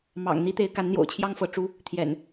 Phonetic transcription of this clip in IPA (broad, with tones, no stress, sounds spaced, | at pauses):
m ɑ̰˨˩ ŋ n̪ i˨˦ t̪ e˨˦ ɪ̯ k a˨˦ n n̪ j o̰˨˩ ʊ̯ t͡ɕʰ j ɑ˦ ŋ f ɤ˨˦ ʈ͡ʂ u˦ | t̪ʰ j ɛ̰˨˩ n